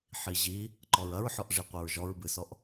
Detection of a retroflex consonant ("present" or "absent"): present